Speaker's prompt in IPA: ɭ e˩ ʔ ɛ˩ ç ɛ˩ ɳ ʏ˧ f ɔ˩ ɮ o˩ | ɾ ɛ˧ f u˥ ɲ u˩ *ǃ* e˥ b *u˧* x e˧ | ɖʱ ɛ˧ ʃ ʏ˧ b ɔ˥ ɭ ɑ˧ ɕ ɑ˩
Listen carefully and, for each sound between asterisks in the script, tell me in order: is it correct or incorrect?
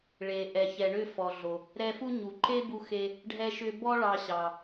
correct, correct

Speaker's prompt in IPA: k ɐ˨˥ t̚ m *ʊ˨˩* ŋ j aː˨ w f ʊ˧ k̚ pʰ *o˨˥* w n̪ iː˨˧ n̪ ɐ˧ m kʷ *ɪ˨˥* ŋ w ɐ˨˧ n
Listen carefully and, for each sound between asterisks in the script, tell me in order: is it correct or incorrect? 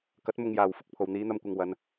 incorrect, incorrect, incorrect

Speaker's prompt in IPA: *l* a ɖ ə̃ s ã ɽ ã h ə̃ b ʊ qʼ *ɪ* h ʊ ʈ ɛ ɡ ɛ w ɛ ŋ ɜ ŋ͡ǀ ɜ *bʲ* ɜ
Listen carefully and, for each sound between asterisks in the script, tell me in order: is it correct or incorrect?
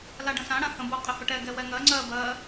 correct, correct, incorrect

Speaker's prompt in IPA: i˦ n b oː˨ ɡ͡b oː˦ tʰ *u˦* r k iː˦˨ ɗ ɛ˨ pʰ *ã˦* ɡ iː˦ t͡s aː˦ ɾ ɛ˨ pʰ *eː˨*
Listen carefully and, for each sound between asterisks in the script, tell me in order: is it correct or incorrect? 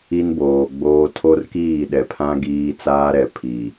incorrect, correct, incorrect

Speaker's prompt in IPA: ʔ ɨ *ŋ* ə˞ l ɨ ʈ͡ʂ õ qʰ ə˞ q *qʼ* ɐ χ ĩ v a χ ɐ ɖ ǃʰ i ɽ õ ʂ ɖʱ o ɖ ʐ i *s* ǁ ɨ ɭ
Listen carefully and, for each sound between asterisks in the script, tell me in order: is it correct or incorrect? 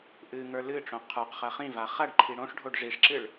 correct, incorrect, incorrect

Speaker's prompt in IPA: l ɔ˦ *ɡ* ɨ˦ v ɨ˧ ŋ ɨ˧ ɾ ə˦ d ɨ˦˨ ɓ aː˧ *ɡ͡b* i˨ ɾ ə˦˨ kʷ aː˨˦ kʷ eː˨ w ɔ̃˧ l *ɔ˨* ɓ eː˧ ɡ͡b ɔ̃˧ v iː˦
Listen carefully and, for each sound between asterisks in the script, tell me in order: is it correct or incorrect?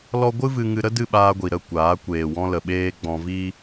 incorrect, incorrect, incorrect

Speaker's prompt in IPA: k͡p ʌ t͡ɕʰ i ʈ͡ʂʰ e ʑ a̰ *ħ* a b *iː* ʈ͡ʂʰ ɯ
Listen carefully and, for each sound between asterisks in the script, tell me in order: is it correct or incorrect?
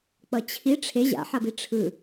correct, incorrect

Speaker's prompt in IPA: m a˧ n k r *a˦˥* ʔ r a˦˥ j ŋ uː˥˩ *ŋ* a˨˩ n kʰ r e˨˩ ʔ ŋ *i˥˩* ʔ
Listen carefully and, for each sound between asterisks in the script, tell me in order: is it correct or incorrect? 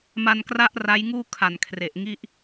correct, incorrect, correct

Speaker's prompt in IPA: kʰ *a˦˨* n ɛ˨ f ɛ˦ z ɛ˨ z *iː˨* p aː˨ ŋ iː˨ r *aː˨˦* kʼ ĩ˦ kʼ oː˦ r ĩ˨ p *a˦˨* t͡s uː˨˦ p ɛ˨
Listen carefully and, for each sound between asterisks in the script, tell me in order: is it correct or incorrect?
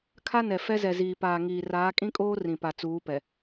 incorrect, correct, correct, incorrect

